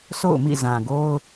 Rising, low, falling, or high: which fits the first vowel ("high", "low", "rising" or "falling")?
falling